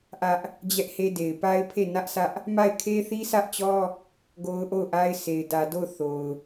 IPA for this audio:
ʔ ä˦ ʔ | d͡ʑ ɛ˦ ʔ h e˦ d e˨ ɪ̯ p a˦ ɪ̯ pʰ e˦˨ n ä˦ ʔ sʰ ä˦ ʔ | m a˦˨ ɪ̯ kʰ e˦ θ i˦ sʰ ä˦ ʔ t͡ɕ ɔ˦ | ɡ o˦ ʊ̯ ʔ o˦˨ ʊ̯ ʔ a˦ ɪ̯ sʰ e˨ ɪ̯ d ä˨ d o˦˨ ʊ̯ θ o˨ ʊ̯

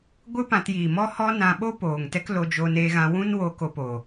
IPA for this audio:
ɡʷ ɨ˦ p ã˧ t j iː˨ m ɔ˦ h ɔ˦ n ã˧ ɓ o˦ p oː˨ ŋ t ɛ˦ k l o˧ d͡ʒ oː˧ n eː˧ ɣ ã˧ w ũ˦ n w oː˧ k o˧ p oː˨

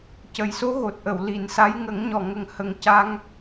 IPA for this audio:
c ə˨˩ j s o˧˥ ɣ o˨˩ t̚ ʔ ə˨˩˨ w l i˨˩˨ n s a˧˥ j ŋ ə˨˩˦ ŋ ɲ ɔ˨˩ ŋ ə˨˩ ŋ h ə˨˩ ŋ c a˧ ŋ

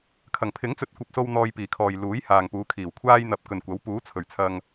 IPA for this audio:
kʰ ɐ˨˩ ŋ pʰ ɪ˨˥ ŋ t͡s ɵ˨˥ t̚ kʷ ɐ˨ p̚ s o˧ w n̪ ɔː˧ j p iː˨˩ kʰ ɔː˨ j l uː˨˥ j h aː˨ ŋ p uː˨˧ kʰ iː˨˩ w kʷʰ aː˥ j n̪ ɐ˨˥ p̚ k ɵ˨ n kʷ ɐ˨˥ w p uː˨˥ t͡sʰ ɵ˨˩ ɥ t͡sʰ ɐ˧ ŋ

